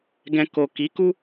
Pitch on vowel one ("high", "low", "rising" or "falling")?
low